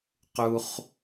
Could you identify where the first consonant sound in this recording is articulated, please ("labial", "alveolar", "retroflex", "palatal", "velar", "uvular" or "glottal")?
uvular